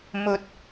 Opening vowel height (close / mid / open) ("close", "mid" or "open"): mid